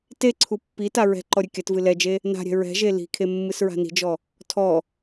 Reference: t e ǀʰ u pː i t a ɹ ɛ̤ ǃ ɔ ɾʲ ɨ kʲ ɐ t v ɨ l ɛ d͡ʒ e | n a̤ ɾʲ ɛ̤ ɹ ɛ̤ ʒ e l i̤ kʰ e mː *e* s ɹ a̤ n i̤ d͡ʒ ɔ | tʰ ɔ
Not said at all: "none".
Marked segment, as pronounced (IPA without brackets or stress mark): ɨ